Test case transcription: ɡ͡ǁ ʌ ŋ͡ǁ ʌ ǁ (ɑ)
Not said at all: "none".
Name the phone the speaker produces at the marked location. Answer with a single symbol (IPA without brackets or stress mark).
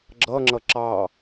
ɑ